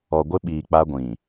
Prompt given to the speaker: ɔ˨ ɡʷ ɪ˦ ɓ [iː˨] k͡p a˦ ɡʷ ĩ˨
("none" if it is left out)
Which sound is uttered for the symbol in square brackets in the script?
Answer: iː˨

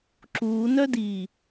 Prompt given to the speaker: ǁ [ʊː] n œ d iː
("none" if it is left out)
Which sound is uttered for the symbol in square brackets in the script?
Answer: uː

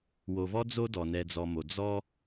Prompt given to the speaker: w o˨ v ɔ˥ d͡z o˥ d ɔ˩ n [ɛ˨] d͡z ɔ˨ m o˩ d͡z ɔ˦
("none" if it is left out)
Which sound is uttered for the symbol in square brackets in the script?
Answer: ɛ˨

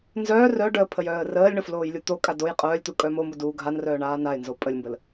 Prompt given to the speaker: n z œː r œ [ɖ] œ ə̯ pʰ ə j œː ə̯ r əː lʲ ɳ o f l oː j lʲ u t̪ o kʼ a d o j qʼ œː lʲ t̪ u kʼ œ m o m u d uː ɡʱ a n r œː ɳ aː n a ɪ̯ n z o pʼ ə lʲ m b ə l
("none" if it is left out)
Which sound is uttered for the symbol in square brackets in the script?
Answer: ɖ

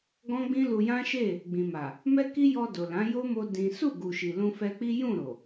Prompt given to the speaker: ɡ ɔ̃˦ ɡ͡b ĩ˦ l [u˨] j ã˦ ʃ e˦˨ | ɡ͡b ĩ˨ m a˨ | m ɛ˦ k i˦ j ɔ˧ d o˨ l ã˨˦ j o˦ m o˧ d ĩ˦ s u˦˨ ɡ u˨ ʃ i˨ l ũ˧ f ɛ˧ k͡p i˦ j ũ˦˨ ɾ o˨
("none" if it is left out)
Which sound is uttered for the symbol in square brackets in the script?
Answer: u˧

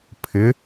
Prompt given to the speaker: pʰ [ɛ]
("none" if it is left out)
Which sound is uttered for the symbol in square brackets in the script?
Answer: ɪ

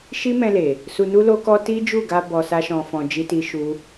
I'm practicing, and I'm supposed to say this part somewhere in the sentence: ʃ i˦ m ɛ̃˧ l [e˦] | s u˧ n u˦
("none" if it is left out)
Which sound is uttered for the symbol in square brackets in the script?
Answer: e˨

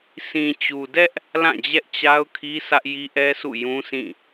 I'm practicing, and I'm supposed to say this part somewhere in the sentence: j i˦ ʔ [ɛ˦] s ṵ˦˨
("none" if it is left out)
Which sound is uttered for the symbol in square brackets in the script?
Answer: ɛ˦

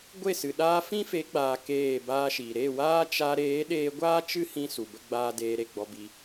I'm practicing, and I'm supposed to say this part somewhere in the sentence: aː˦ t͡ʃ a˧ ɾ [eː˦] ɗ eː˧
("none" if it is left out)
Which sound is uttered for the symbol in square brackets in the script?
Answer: eː˨˦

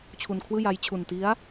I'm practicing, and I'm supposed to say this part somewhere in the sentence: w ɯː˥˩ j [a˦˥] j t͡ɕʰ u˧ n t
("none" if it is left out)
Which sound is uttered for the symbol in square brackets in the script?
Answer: a˦˥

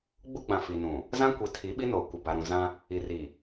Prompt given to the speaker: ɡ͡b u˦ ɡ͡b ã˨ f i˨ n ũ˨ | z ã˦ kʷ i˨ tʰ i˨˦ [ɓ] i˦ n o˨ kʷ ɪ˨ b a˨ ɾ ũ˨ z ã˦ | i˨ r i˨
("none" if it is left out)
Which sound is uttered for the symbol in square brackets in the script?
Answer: ɓ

